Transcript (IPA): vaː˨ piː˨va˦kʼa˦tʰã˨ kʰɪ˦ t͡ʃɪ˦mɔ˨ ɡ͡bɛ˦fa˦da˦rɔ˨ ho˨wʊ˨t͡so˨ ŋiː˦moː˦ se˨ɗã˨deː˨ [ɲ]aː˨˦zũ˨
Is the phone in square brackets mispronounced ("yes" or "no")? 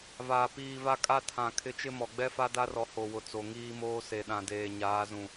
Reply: no